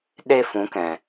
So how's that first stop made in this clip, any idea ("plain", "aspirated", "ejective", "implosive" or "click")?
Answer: implosive